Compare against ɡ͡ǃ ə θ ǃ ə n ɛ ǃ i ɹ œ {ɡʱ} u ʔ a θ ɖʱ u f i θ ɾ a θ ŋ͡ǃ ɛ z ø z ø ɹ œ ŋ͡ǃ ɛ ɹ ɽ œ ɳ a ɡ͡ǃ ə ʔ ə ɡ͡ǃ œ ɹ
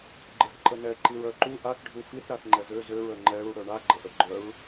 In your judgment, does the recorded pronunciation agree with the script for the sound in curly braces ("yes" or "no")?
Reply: no